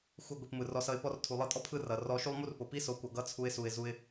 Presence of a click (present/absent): absent